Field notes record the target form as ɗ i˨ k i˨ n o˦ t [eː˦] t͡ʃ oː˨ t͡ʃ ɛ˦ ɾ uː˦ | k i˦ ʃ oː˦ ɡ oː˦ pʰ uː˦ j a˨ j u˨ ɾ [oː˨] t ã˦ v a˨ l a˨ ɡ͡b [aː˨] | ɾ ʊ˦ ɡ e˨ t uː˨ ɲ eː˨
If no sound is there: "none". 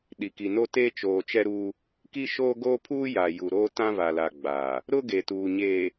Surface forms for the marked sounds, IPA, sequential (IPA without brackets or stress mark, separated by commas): eː˦, oː˦, aː˨